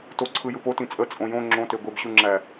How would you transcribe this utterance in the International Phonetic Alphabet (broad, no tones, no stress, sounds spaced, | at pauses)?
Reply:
t o ǀʰ ɯ j ɯ p o t ĩ t͡sʼ ə t͡sʼ õ j õ ŋ͡ǁ õ t e ɡʷ e b ɕ u ŋ͡ǁ æ